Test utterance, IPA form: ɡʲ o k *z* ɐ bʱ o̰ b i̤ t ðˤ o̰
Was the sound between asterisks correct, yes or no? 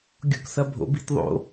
no